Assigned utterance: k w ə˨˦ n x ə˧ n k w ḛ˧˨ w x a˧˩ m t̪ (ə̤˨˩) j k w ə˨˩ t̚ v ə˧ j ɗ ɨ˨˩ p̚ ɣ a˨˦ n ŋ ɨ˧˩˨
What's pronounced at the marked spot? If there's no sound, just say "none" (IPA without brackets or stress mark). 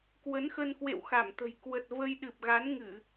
ə̤˨˩